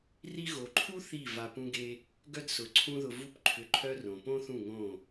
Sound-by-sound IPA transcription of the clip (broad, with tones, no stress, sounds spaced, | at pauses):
r i˧ ɣ o˨ ǃʰ u˦ θ i˦˨ v a˧ p ũ˦ ɡ e˦ | ɡ œ˦ d s ʊ˨˦ ǀʰ ũ˦ ð ʊ˧ v u˦ p ǃʰ ʏ˧ ǃʰ œ˦ r õ˨ p õ˦ θ ũ˦˨ ŋ õ˦˨